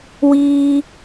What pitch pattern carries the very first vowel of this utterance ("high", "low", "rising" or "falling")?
high